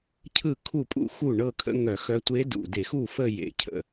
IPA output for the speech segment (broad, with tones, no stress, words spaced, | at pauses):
cʰɯ˥˩kʰu˥˩pʼṵ˥˧ xu˥˩ ɳɤ˥˧kʰə̰˧˥ŋœ˧˩˧xœ˧˥ tʷe˧˥dṵ˨˩de˧˩˧xu˥˩ fə˥˧jḛ˨˩ cʰə̰˨˩